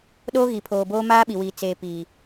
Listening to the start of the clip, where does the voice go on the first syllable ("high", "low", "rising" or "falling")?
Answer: high